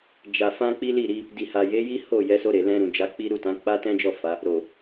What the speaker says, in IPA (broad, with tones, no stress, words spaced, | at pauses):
d͡ʒa˨ fã˧ k͡pi˦li˦˨ɾi˧ | di˨ha˨je˨˦ji˦ ho˦˨ jɛ˨˦so˧ɾe˨ lɛ̃˧ɾũ˨d͡ʒa˨˦k͡pi˦ ɾu˦˨tã˨˦ k͡pa˦tɛ̃˦d͡ʒɔ˦˨ fa˨˦ | ɾo˨